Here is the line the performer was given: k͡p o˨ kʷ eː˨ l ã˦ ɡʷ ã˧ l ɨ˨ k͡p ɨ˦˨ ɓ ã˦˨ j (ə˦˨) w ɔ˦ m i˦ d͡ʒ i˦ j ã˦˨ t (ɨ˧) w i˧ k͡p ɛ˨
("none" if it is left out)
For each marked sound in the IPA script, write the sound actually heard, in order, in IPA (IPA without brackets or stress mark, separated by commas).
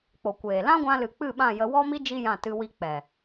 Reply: ə˧, ɨ˧